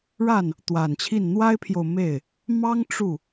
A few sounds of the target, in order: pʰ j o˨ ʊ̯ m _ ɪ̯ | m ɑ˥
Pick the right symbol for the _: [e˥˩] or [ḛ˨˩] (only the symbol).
e˥˩